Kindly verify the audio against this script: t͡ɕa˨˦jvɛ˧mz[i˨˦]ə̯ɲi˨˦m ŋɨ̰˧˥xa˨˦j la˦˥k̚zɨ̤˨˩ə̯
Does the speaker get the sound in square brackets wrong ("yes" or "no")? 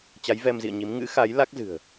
yes